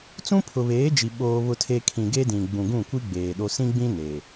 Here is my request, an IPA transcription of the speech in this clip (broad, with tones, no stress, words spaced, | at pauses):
t͡sũ˦pʰʊ˨βeː˨˦d͡ʒi˨ ɓoː˦ βʊ˦tʰe˦ kʰĩ˨ɡe˦dĩ˨ ɡ͡bũ˨ɡũ˦˨kʷi˦ ɡ͡beː˨ɗo˦ sĩ˦ɡ͡bĩ˦ ne˨